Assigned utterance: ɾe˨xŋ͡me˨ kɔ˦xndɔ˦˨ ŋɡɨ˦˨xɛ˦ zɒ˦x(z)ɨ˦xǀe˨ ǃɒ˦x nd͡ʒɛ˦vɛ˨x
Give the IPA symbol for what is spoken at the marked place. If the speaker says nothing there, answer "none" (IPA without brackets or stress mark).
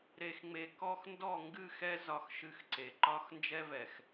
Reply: ʃ